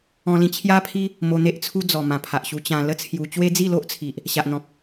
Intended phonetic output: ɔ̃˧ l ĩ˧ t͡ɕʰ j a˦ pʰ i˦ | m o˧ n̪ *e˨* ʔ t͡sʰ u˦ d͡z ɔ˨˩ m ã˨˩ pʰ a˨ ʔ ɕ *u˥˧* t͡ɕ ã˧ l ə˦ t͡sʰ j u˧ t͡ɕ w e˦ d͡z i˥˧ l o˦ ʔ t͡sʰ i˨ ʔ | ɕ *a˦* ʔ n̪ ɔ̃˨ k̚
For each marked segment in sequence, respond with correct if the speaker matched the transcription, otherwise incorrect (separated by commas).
incorrect, incorrect, incorrect